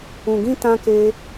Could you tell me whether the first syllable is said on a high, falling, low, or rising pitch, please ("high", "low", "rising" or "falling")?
low